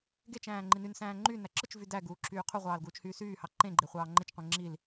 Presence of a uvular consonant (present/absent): present